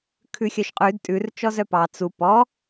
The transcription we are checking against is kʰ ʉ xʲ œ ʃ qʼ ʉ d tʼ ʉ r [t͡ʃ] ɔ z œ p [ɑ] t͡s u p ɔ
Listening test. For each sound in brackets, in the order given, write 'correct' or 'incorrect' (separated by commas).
correct, correct